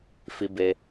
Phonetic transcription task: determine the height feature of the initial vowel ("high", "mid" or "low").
high